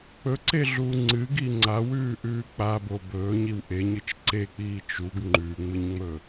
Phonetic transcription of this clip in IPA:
k͡pɵǀeɮuː ŋ͡ǀɨɡi ŋ͡ǀawʉːʔʉː k͡pabo bɵːɲiw ʔeɲɨt͡ʃ ǀek͡piː t͡ʃuɡ ŋ͡ǃʉːŋ͡mɨɲŋ͡mɵː

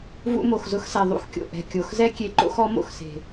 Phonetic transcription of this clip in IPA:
vṵ˧mo˨xzʊ˧xsɛ˨ ðˤṵ˧xkʲo̰˨ ʔɛ̤˨kʲo˨xzɛ˦kʲe˧ ǃo̰˦xɔ˨˦mo̰˨xse̤˨

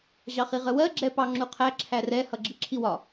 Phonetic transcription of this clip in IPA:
ʑɑχiʁəwɜ ɡ͡ǁɛpɑŋ͡ǁuqʰæ ǁʰærɛ hʌɡ͡ǁiǁʰiwɒ

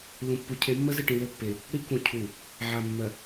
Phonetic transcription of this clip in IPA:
lũ˨pːu˨˦ cʰe˨˦mːə˦zɪ˦˨ ʈĩ˨lɘ˦˨pːe˨ | ɽi˦kũ˨ cʰu˨ | ʕa˨mːɜ˨

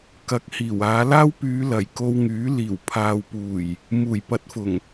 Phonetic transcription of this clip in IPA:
kɐ˨˥k̚ hiː˨˩waː˨˧laː˥w pyː˨˧lɐ˨˩j ko˧wŋyː˨˥ liː˨˩wpʰaː˨wpuː˨˩j | muː˨˩jpɐ˨˥t̚fʊ˨˩ŋ

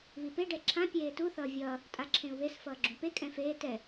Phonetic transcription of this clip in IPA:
βipe ɖɛǁʰã pʲeːtu θʌːvʲʌː | tʼaǁʰẽu̯βes fʌːɡ͡ǁũpe kʼɛ̃feː tɛ

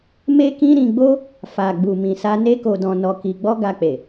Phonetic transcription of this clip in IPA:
me˦kĩ˦ ɾĩ˧ɡ͡bo˦ | fa˨ɡ͡bu˨ mĩ˧sa˦ ne˦ko˧dɔ̃˧ nɔ˧ki˧ ɡ͡bɔ˦ɡa˧k͡pe˨

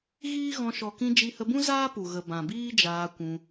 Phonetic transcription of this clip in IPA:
ɣiː˦ɣɔ̃˧ ʃɔ˨kĩ˧ d͡ʒi˧hə˧bũ˦ zaː˦pu˨ ɣə˨ bã˨biː˦d͡ʒaː˧ kʷũ˧

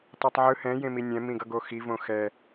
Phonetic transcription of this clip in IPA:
tˤetˤʕɯ hɛ̃ jẽminʲɛ̃ mĩɡʌɡoxi võxɛ

